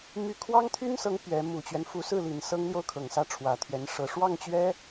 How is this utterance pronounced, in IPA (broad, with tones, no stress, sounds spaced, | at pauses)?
m y˥˩ kʰ w ɑ˥ ŋ t̪ʰ y˥ n s ɤ˧˥ ŋ p ɥ ɛ˧˥ m u˨˩ t͡ɕ ɥ ɛ˦ n f u˧˥ s ɹ̩˥˩ l i˨˩ n s ɤ˥ ŋ l j o˥˩ ʊ̯ kʰ ɤ˨˩ ŋ s ä˥˩ ʈ͡ʂʰ w ä˨˩ t̪ʰ ɥ ɛ˧˥ n ʂ ɤ˧˥ ʂ w ɑ˥˩ ŋ t͡ɕ ɥ ɛ˥